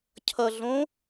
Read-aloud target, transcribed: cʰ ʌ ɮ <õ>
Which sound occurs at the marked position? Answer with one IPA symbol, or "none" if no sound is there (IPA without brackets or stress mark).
õ